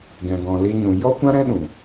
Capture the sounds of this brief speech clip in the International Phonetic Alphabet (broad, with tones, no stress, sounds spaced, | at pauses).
ɡ ɛ̃˨ ɡ ɔ̃˨ l i˧ ɲ ũ˨ j ɔ˦ kʷ ã˦ ɾ ɛ̃˦ ɗ ũ˨